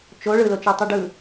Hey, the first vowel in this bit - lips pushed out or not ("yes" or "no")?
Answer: yes